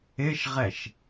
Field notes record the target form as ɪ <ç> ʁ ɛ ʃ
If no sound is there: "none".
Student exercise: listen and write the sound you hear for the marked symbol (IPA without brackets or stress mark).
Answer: ʃ